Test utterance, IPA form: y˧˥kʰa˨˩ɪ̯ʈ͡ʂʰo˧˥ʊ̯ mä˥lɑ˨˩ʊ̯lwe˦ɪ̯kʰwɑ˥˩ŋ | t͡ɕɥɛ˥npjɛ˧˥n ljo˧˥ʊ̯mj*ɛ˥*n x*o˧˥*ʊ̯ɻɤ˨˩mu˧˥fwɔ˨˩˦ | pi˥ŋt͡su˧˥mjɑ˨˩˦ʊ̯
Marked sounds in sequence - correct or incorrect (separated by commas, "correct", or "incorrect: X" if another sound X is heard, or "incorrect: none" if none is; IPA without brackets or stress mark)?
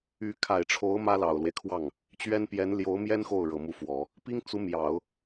correct, incorrect: o˥˩